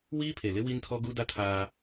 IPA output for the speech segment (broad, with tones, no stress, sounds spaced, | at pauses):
w iː˦ pʰ e˨ l ɪ˦ w i˦ n tʰ ɔ˦ ɡ u˦ d a˦ tʰ aː˦